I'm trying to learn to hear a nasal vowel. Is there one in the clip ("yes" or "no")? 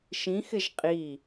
yes